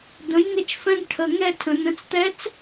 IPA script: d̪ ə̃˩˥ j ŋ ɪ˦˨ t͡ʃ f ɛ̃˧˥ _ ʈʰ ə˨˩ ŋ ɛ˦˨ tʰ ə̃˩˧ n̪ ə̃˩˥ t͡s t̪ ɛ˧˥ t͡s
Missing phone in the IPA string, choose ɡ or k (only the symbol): ɡ